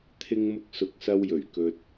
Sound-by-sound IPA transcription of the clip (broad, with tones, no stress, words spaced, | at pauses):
t̪ʰɪ˧ŋmʊ˧k̚sʊ˨k̚sɐ˧w jɵ˨˩ɥkɵ˨t̚